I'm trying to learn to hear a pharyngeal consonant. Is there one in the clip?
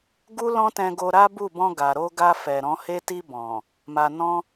no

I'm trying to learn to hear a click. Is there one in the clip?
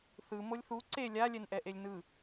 yes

